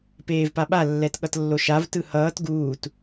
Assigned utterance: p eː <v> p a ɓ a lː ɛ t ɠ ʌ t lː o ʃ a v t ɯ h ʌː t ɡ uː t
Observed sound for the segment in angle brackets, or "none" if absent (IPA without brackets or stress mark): v